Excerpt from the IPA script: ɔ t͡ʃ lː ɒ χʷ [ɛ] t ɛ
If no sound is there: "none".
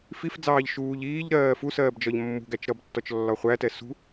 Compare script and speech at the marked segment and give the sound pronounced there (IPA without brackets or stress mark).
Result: æ